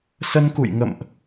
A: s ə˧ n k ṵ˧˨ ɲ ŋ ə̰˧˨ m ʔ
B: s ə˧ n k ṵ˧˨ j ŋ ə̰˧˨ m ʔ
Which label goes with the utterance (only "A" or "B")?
B